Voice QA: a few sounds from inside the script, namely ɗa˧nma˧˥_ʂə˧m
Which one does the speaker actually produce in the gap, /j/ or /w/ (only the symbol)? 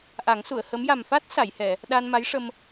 j